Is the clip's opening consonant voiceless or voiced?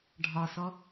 voiced